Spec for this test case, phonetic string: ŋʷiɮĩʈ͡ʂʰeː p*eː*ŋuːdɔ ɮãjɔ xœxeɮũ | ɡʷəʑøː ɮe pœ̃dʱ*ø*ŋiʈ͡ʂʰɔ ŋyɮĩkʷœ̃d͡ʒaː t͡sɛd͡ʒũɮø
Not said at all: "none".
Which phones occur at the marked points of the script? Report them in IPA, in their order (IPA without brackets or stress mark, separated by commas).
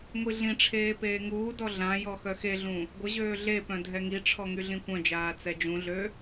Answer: eː, ɛ